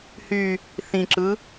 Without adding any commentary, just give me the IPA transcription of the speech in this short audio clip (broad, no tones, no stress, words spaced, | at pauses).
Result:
hy | θĩǁɯ